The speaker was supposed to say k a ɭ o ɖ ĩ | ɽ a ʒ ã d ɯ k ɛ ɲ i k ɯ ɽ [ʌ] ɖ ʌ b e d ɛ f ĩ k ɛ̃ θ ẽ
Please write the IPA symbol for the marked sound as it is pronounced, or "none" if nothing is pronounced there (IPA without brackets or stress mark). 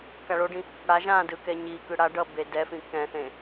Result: a